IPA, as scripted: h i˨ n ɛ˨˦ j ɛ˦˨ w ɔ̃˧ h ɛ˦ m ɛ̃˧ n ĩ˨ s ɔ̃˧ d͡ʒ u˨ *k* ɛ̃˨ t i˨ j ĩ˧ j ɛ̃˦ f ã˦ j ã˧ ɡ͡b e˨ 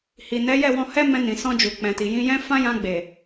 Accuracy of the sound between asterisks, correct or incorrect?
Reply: incorrect